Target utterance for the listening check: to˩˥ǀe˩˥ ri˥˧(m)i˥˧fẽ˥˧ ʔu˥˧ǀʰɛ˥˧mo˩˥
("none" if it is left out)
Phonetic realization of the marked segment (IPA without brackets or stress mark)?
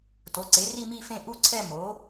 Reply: m